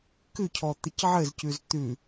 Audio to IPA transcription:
k ʉ cʰ ɔ t̪ ɘ c ʕ ɘ z c ʉ z t̪ ʉ

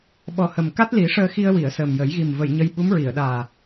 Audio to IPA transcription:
ɓ ɔ˨˩ h ə˨˩ m k a˦˥ t̚ l i˨˩˦ ʂ əː˧ x i˧ ə̯ w i˨˩˨ ə̯ s əː˨˩ m j ə˨˩˦ j ɣ i˨˩ m v ə˨˩˨ j ɲ ə˧ j ɓ u˧˥ m ɹ i˨˩˨ ə̯ ɗ aː˨˩

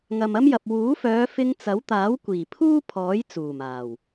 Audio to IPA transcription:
ŋ ɐ˨ m ɐ˥ m j ɐ˨ p̚ w uː˨˥ f œː˨˧ f ɪ˧ ŋ t͡s ɐ˨˥ w t̪ aː˨˥ w kʷ iː˨˩ pʰ uː˥ pʰ ɔː˨˥ j t͡s uː˨˩ m aː˨˩ w

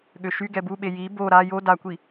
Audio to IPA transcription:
ɠ ø ʃ y ɡ ɛ b u ɓ e j i b o ɾ a j o d a kʷ i

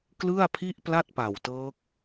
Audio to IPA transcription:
k l ɯ˥˩ a̯ pʰ i˥˩ ʔ p l a˥˩ t̚ p a˨˩ w t ɤː˦˥ k̚

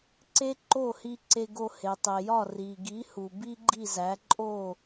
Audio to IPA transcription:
ǀ e˥ ǃ o˥˩ h i˧ ǀ e˧ ɡ o˧ h e˩ tˤ e˩ j ɒ˥˩ r i˩ ɡ i˩˥ h u˩ b i˥ ɡ͡ǃ i˥˩ z æ˩˥ ǃʼ o˥˩

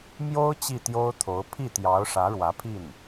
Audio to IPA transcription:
m j o˥ ʊ̯ t͡ɕ i˥˩ t̪ j o˥ ʊ̯ t̪ʰ o˧˥ ʊ̯ pʰ i˥˩ t̪ j ɑ˧˥ ʊ̯ ʂ ä˧˥ ɻ w ä˧˥ pʰ i˥˩ n

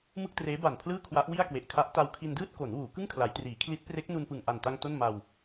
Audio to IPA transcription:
m ɯ˥˩ k̚ t r eː˦˥ b a˨˩ n pʰ l ɯː˥˩ kʰ w a˦˥ ʔ w i˥˩ a̯ k w e˨˩ ʔ kʰ a˦˥ ʔ t a˧ w kʰ i˧ n d ɯː˥˩ t̚ k o˩˦ n w uː˩˦ k ɯ˥˩ ŋ kʰ l a˩˦ j t r iː˩˦ kʰ l i˦˥ t̚ p r e˦˥ k̚ n u˧ n p ɯ˨˩ ŋ ʔ a˨˩ n t a˧ ŋ t o˥˩ n m a˧ w

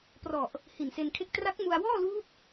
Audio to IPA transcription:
p r ɔ˨˩ ʔ | h i˨˩ n s e˧ n kʰ e˥˩ k̚ t r a˦˥ k̚ m u˧ a̯ w ɔː˥˩ l uː˦˥ p̚

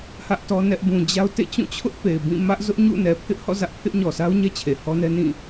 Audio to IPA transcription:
h ä˦ ʔ t ɔ˦ n ɛ˦ ʔ b ũ˨ d͡ʑ a˦ ʊ̯ t ḛ˦˨ t͡ɕ ũ˦˨ t͡ɕʰ ʊ˦ ʔ p e˨ ɪ̯ b ĩ˦˨ m ä˦ ʔ z ʊ˦ ʔ ɲ ṵ˦˨ n ɛ˨ pʰ ɪ˦ ʔ h ɔ̰˦˨ z ä˦ ʔ pʰ ɪ˦ ʔ ɲ ɔ˨ s a˦ ʊ̯ ɲ ɛ˦ t͡ɕʰ e˨ h ɔ˦ n ɛ˦ n ĩ˦˨

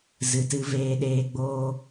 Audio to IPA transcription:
z ɨ˨ t ɨ˧ v eː˧ ɗ eː˧ ɡ͡b oː˦

